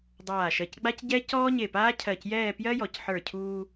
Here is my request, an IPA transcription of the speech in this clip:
dˤ aː˧˩ ʃ ɜ˧˩ c ɡ͡b a˥ c ɟ ɛ˥ c ɔː˥ ɲ e˧˩ p aː˥ cʰ ɜ˧˩ c j ɛː˥˧ p j ɜ˥ j ɔ˩˧ c ħ ə˞˧˩ cʰ uː˧

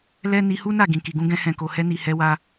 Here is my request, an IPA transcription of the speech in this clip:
l ɛ˦ n i˧ h u˦ n a˦˨ ɡ ĩ˨ k i˨ ɡ ũ˧ ɡ ɛ̃˧ h ɛ̃˨ k o˨ h ɛ˧ n i˨ h ɛ˨˦ w a˧

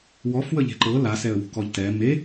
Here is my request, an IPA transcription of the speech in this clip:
w ɔ f w ə ʎ e̤ ǃ ɤ l a s ɛ ə̯ w ṳ k ɔ ʎ t ɛ m e

